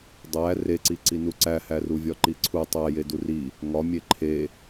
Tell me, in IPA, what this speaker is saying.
dˤæ reǀiǀinu ǀæhæ ruvʲɒǃiǀʰu tˤæjedu ri | ŋɒmʲe ǃʰe

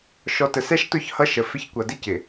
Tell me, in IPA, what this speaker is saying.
ʃɔ˨tə˨sɛ˦ʃtʊ˦˨ç hʌ˦ʃə˨fɪ˦ç kʷʌ˨dɪ˦cɪ˨

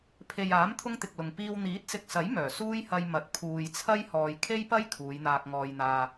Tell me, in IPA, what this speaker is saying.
pʰe˨jaː˨˥m t̪ʰʊ˥ŋt̪ɪ˨k̚lʊ˨ŋ piː˧w n̪iː˨˥t̚sɪ˨k̚sɐ˨˥j mœː˨˩ suː˥jhɐ˧j mɐ˨˥t̚ pʰuː˨jt͡sʰɐ˥j hɔː˨jkʰe˥jpɐ˥j kʰuː˨˧jn̪aː˧k̚ŋɔː˧jn̪aː˧

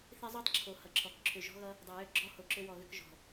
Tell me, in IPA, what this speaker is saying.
θe˦zˤu˦tˤǁʰo˨ hʌ˨ǁʰɔ˨k ǁʰʏ˨ʒɔ̤˦ɣʌ˦ | dˤe˨jʏ˦˨ ɡ͡ǁɔ˦ ho˨ǁʏ˦wɔ˨ɣʏ˦k ʒɔ̤˨

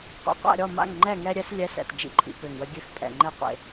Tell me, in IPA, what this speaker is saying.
qʷḭ˨˩qʷa̰˥˨ɾʲɔ˥˨ ma̰˥˨ŋŋ͡ǃɛ˥˨ ŋɛ˧ɾʲɛ˧s lʲɛ˨˥sɛ̰˨˩t d͡ʒḭ˧ǃʼḭ˧ pø˨˩ŋwə˧ ɡʲø˥˨xpʼɛ̰˨˩ŋ͡ǃɛ˥˨qʷḛ˥˨

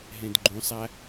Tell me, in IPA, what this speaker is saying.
ɦɛ̃dɡ͡ǃũsˤa

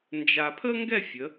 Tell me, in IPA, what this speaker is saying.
nd͡ʒa˧ pʰə˥ŋɡɛ˥˧fʲə˩˧

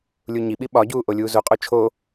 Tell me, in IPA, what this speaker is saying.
lʲuɲiɓi ɓɒɟuː ʔolʲuːzoqʼo t͡ʃʰo

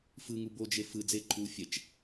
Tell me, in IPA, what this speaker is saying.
fɯŋu bod͡ʒe fɯ d͡zeǃʰuː fʲɛt͡ʃ

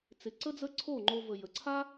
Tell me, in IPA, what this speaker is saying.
t͡sɪ˨ǀə˦d͡zə˦ ǀʰo˦˨ŋ͡ǃo˧və˨jə˨ ǀʰa˦

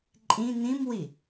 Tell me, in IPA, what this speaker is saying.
ǃʼĩ n̪ĩmwi

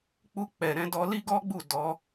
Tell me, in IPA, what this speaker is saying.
k͡pu˧k͡pɛ˨ ɾɛ̃˧dɔ˧li˦ ɡɔ˦ɡ͡bu˦˨ dɔ˨˦

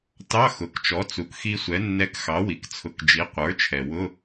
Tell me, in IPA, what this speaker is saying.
tɑ˧˥˧xʊ˩kt͡ʃɔ˩˥ t͡su˩kxi˧sʷɛ˩˥nːɛ˧k xɑ˩˥wi˩kt͡sʰʊ˩˥k d͡ʒi˩˥ qʷə˞˩˥t͡ʃʰɛ˩ wʊ˧˥˧

